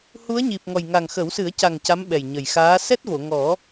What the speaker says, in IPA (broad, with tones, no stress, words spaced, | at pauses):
hu˧˥ə̯ɲi˨˩p̚ŋɔ˨˩j ŋa˨˩ŋxə˨˩˦wsɨ˨˩˦ə̯ca˨˩ŋ ca˧˥mɓɛ˨˩jɲə˨˩jxaː˧˥ sɛ˦˥t̚vo˨˩˨ŋɔ˨˩˦